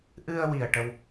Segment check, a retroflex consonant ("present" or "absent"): present